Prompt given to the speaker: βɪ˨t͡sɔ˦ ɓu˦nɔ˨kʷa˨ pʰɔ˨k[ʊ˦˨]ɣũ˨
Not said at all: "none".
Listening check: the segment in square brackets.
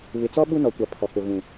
ʊ˨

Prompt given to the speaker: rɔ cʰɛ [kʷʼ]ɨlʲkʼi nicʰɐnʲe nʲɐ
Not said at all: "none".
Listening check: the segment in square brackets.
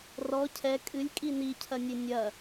kʼ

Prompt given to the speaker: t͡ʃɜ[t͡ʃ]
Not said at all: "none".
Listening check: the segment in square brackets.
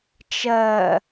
none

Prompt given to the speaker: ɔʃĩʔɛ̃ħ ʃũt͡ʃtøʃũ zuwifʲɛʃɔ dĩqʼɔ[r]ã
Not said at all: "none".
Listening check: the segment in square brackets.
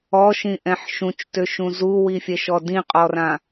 r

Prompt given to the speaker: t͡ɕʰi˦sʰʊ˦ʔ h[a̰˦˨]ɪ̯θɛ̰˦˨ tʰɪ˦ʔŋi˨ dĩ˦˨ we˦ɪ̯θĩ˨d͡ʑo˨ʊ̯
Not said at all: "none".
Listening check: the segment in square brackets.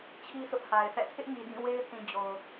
a˨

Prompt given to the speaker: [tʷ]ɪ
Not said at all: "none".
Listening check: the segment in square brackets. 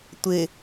tʷ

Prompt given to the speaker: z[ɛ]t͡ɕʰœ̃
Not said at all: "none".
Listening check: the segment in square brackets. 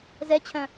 ɛ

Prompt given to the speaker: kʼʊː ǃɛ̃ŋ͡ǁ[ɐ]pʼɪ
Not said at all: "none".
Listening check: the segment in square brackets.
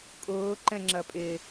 ɐ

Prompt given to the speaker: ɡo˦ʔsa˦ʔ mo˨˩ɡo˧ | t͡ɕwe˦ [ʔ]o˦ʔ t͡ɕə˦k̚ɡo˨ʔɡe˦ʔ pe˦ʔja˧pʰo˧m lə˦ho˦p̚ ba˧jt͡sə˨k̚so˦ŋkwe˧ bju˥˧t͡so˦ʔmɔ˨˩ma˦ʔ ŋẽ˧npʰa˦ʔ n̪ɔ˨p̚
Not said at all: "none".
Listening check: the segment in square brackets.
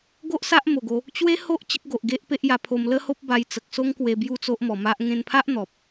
h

